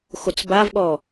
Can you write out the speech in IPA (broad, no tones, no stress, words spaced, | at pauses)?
xot͡sbavɠɔ